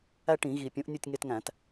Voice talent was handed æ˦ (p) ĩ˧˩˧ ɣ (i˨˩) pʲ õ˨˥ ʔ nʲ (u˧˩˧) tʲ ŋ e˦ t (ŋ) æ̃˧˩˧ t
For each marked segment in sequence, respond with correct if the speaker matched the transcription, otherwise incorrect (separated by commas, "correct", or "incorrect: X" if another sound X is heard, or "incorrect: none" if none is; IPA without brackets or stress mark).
incorrect: ʈ, correct, incorrect: u˥˨, correct